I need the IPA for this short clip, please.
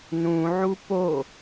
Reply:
n ũ ʕ u p o

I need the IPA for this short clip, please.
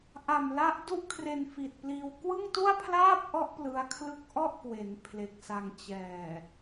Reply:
ʔ a˨˩ m l a˦˥ ʔ d u˥˩ ʔ kʰ r e˧ n f i˨˩ t̚ p l iː˧ w k w ɯ˥˩ ŋ t u˥˩ a̯ pʰ l aː˥˩ p̚ ʔ ɔ˦˥ ʔ p l ɯ˦˥ a̯ kʰ l ɯ˥˩ k̚ ʔ ɔ˥˩ ʔ k w e˩˦ n pʰ l e˨˩ k̚ s a˧ ŋ t͡ɕ ɛː˨˩

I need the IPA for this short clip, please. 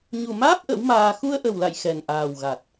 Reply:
ɲ u˨˩ m aː˦˥ p̚ ʔ ə̰˧˥ w m aː˧ x u˧ ə̯ ʔ ə˨˩ w l a̰˧˨ j x ɛ˨˩ n ʔ aː˨˩ w ɣ a˨˩ t̚

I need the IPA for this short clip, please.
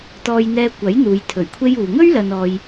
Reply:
t̪ ɔː˧ j n̪ ɛː˧ kʷ ɐ˨˥ j n̪ uː˨˧ j t̪ʰ ɵ˨˩ ɥ kʷʰ e˥ j uː˨ ŋ ɵ˥ ɥ l ɐ˨ n ɔː˨ j

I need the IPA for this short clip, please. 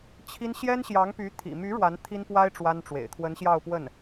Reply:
t͡ɕʰ i˥ n ɕ j ɛ˥ n ɕ j ɑ˧˥ ŋ p y˧˥ t̪ʰ ḭ˨˩ m y˧˥ ɻ w a˧˥ n t̪ʰ i˥ n p w a˥ ɪ̯ ʈ͡ʂ w a˥ n ʈ͡ʂ w ḛ˨˩ ɪ̯ t̪ʰ w ə˧˥ n ɕ j ɑ˥˧ ʊ̯ p w ə˥˩ n

